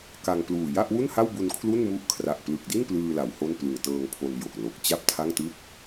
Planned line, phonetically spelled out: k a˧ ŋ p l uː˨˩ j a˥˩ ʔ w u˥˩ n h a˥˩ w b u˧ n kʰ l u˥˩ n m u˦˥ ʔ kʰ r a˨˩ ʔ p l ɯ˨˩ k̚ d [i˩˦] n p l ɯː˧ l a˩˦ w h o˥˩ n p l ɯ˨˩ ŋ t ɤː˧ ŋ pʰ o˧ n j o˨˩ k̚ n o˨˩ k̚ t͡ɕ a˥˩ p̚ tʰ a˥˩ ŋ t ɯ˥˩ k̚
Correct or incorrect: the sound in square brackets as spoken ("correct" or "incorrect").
incorrect